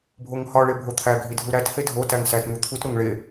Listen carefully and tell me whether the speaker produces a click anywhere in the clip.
no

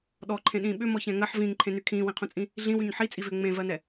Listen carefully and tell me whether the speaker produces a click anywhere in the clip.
yes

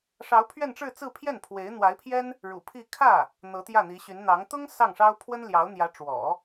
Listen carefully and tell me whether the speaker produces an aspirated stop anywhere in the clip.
yes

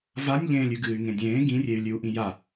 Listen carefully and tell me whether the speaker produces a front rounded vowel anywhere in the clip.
yes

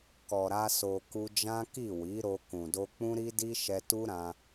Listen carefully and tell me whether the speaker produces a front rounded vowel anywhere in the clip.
no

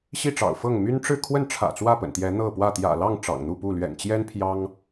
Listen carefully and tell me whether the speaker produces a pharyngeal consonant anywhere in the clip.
no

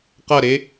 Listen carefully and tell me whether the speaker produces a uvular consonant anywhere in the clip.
yes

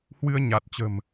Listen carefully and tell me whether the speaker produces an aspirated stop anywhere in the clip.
no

